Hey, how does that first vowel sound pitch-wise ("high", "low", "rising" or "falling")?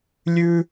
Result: high